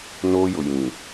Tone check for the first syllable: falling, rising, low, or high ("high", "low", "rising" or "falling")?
high